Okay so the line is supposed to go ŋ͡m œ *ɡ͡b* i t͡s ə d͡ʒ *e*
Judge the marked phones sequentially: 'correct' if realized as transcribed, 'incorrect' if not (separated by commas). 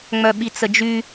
incorrect, incorrect